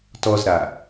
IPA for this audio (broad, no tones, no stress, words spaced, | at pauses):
tɔzɾa